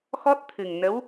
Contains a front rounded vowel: no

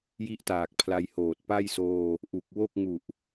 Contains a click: no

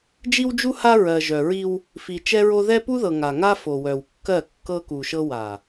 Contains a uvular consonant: no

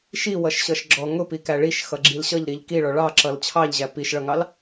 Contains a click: yes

